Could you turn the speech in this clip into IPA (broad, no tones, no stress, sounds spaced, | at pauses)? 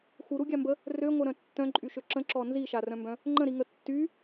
x u ɾ u ɡʲ a m b ə | r ø ŋʷ œ ɾ œ̃ tː œ̃ ǃʼ y ʃ ø ǁ ə̃ ǁ ɔ n z i ʃ a r œ̃ m b œ̃ | ŋ͡ǃ ə̃ ɾ i ŋ ə tː y